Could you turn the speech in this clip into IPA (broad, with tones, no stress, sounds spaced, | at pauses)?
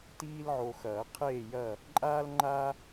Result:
t iː˦ l ʕ o˨ x ɐː˨˩˦ qʰ eː˥˨ j ɐː˥˨ | ǃʼ aː˦ l ŋ͡ǃ aː˦